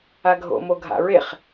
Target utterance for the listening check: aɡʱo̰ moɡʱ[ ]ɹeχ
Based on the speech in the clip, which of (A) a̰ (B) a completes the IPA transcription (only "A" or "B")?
A